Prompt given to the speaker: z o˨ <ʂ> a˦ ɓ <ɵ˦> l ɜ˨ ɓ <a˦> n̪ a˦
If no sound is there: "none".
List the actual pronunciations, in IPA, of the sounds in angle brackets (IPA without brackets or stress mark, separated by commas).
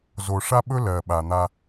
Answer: ʂ, ɵ˦, a˨